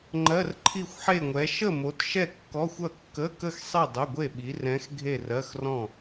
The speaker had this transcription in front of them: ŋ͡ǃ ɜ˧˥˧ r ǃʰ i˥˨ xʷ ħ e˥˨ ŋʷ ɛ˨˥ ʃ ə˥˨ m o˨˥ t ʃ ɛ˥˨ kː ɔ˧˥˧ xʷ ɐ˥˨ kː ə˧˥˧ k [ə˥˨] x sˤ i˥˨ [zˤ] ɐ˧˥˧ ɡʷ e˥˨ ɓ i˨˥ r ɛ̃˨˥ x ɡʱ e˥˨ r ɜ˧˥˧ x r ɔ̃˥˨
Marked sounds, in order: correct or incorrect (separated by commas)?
correct, incorrect